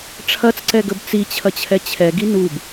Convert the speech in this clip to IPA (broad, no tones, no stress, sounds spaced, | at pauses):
ʈ͡ʂʰ ɐ t͡s ǀ ɛ ɡ ə b t͡s i t͡ɕʰ ɐ t͡ɕʰ ɛ t͡ɕʰ ɛ ɡ i n u b